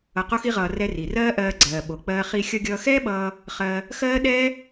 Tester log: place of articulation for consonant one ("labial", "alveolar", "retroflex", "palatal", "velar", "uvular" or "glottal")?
uvular